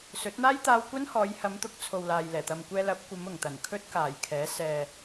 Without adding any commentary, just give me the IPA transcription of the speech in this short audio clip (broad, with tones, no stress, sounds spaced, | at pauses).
s ɵ˨˥ t̚ n̪ aː˥ j t̪ aː˧ w kʷ ɐ˥ n h ɔː˨˧ j h ɐ˨˧ m t̪ ʊ˨˥ k̚ t͡sʰ o˨ w l aː˨ j l ɛː˨˩ t̪ ɐ˨ m kʷ ɛː˧ l ɐ˨˥ p̚ kʷ ɐ˨˧ m ʊ˨˩ ŋ t̪ ɐ˨˩ n kʰ ɵ˥ t̚ k aː˨˩ j kʰ ɛː˨˥ s ɛː˨